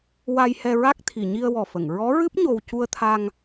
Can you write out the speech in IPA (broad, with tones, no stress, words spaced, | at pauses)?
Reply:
wa˧jhɛ˧ɹa˦˥k̚t̪ʰi˨˩˨ ɲi˧ə̯wɔ˨˩fə˨˩˨ŋ ɹɔ˧˥ɹɨ˦˥p̚ ɲo˧w cu˧ə̯t̪ʰa˧ŋ